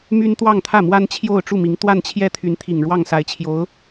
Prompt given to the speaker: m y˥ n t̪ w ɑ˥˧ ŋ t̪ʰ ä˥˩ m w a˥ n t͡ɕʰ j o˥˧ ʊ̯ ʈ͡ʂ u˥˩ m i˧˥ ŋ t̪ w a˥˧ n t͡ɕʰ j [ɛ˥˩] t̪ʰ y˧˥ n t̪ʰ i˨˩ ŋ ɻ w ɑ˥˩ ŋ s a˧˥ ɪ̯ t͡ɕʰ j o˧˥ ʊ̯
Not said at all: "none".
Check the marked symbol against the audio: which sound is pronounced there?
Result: ɛ˥˩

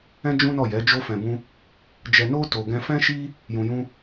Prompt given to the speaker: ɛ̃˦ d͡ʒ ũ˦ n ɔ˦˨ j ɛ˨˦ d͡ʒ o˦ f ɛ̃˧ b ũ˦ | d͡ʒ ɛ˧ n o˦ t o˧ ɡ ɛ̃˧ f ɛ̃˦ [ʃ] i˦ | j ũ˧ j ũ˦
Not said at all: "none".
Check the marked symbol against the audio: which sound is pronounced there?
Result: ʃ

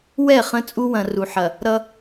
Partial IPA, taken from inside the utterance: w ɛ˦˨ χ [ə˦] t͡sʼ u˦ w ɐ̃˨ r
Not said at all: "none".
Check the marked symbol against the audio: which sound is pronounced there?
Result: ə̃˦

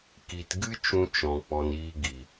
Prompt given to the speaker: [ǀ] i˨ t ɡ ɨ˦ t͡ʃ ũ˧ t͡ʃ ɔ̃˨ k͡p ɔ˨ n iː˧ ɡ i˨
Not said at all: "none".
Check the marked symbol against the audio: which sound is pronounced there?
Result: k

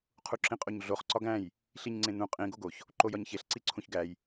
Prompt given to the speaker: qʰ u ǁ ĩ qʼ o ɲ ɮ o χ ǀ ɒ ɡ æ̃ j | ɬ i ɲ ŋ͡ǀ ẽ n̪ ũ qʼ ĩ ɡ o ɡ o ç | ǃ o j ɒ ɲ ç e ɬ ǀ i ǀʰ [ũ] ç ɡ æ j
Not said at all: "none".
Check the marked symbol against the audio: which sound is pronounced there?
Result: ũ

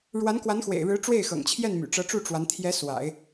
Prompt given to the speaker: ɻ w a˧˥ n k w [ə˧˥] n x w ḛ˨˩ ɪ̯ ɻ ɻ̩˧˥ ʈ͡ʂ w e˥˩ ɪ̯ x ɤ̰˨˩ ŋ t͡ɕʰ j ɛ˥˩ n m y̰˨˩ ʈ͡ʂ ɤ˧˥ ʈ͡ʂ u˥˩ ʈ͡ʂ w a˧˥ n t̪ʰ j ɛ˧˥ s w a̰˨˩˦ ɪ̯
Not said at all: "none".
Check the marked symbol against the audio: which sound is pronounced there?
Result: a˧˥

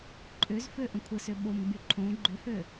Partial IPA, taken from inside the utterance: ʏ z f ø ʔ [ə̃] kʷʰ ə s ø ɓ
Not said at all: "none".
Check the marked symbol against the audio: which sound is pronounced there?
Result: ə̃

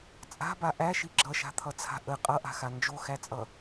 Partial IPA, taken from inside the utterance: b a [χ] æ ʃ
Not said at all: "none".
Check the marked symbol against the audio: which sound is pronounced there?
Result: ʔ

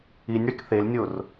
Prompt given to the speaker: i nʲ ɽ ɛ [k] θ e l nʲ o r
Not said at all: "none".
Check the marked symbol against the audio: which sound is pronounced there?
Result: k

